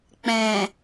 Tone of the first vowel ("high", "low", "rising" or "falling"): low